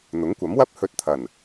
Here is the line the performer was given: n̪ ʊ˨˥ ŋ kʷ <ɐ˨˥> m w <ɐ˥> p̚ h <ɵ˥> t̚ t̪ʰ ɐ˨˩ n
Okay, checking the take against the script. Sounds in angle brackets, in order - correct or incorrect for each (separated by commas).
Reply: correct, correct, incorrect